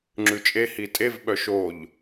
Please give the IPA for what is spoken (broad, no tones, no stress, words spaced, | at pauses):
ŋ͡ǁʉt͡ʃʼe hitʼev ɓœʃoʎ